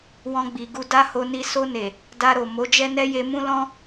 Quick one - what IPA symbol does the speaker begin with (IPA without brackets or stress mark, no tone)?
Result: w